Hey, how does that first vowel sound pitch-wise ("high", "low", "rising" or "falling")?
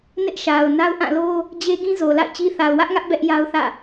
high